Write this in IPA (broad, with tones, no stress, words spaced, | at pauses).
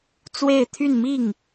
t͡swe˥˧ɪ̯t̪ʰy˥˧nmi˥˩ŋ